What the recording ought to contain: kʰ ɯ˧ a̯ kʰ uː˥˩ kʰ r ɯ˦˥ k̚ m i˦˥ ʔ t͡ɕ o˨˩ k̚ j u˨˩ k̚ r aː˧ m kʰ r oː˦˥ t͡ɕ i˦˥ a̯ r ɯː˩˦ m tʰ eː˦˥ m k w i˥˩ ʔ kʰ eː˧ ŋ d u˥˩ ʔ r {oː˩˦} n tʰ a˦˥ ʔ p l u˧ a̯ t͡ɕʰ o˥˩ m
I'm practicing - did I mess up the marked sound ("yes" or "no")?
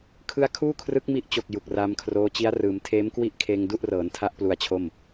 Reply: yes